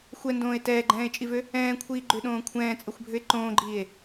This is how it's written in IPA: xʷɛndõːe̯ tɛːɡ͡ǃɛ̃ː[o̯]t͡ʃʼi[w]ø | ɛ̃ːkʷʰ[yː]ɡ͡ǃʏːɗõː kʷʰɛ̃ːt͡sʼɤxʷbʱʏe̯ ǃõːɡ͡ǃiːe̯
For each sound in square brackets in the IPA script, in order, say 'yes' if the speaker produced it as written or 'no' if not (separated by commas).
no, no, no